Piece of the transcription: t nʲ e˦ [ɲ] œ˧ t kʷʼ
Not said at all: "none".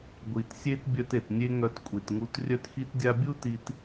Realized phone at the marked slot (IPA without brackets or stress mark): ŋ